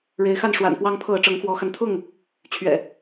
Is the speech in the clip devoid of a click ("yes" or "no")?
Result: yes